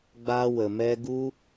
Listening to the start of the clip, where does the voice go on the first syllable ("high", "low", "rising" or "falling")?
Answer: high